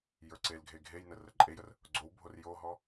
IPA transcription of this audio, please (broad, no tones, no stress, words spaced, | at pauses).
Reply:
jə˞ǀelɡʱe ɡʱejnə rəǃʼejər | ɡ͡ǀowbʱor joɦɔ